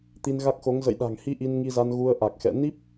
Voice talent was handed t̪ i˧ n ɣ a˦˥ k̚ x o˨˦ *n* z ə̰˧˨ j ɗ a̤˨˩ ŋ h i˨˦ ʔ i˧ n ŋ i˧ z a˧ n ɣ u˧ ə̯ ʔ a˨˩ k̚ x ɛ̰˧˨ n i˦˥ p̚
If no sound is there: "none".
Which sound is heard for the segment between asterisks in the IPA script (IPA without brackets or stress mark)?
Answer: ŋ